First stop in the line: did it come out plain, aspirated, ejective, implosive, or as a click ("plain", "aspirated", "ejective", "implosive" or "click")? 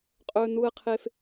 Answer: ejective